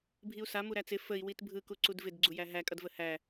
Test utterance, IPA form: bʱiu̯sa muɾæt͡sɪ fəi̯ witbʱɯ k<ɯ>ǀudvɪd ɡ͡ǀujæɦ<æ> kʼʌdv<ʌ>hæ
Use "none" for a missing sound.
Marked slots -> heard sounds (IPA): u, æ, ə

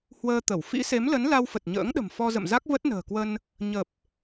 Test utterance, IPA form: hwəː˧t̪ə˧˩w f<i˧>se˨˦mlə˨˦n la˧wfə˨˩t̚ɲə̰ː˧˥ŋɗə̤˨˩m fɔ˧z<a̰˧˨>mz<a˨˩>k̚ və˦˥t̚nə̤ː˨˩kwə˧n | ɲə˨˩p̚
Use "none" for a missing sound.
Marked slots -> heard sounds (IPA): ḭ˧˥, ə̰˧˨, a˦˥

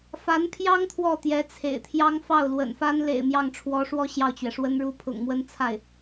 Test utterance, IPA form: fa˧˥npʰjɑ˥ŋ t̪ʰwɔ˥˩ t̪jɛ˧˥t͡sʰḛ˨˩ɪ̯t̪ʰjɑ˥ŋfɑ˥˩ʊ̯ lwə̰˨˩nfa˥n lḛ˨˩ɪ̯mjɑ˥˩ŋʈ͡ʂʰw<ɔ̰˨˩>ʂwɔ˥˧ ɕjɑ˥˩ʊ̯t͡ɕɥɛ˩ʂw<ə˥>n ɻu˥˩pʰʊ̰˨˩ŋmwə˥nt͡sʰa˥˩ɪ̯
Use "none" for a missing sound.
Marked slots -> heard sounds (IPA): ɔ˧˥, ə˥

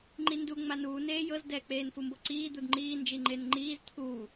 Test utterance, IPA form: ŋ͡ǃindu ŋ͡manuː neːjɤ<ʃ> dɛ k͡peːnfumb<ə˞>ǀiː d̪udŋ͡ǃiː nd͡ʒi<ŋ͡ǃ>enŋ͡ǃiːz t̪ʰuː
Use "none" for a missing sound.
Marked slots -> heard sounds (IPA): z, ɤ, ŋ͡ǃ

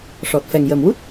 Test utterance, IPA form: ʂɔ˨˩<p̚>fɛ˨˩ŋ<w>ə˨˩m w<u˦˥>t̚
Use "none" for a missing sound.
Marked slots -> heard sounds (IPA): t̚, j, u˦˥

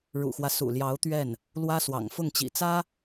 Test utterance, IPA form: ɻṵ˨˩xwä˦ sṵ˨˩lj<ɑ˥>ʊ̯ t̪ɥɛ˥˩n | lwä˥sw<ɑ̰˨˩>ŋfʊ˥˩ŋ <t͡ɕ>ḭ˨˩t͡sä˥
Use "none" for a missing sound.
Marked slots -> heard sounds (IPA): ɑ˧˥, ɑ̰˨˩, t͡ɕ

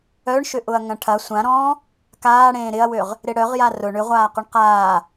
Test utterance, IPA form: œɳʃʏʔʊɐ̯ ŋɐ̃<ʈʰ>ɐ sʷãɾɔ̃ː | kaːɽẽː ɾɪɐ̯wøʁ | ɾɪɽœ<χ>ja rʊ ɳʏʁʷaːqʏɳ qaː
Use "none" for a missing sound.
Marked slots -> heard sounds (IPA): ʈʰ, ʁ

